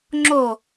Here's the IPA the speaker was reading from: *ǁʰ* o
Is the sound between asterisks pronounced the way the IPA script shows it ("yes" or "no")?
no